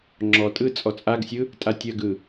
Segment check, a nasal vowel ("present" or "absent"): absent